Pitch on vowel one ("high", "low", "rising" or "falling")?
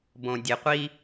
low